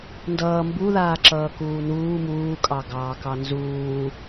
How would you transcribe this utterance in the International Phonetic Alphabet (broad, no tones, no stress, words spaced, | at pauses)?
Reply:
ndʌː mbu ðaːǁʌːkuːnuː muːkʼɑ ɡɑːkɑnzuː